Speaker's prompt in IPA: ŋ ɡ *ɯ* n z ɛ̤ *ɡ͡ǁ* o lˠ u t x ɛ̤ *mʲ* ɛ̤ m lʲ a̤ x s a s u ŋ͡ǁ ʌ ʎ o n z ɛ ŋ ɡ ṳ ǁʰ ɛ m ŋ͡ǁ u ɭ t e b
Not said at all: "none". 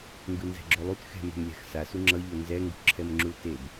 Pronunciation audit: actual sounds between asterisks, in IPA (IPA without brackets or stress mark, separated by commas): ɯ, ɡ͡ǁ, m